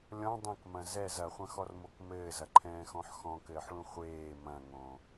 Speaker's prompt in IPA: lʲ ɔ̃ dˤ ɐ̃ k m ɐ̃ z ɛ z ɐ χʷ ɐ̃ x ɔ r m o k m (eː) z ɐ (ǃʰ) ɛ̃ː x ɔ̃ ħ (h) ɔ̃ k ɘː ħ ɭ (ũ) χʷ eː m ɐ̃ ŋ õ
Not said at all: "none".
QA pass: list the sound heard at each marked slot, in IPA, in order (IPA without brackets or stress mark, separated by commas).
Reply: ɘː, ǃʰ, x, ũ